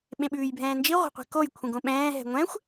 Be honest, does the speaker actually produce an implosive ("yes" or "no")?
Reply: yes